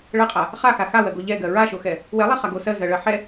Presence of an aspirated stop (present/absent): absent